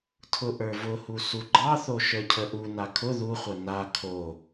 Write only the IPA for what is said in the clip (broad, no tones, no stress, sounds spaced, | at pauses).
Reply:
tʰ ʊ ʔ ə˞ v ʊ h u s u ɡ͡ǃ ɑ θ o ʃ ə˞ cʰ ə ʔ u n a kʰ ʊ ð u χʷ ə n a kʰ o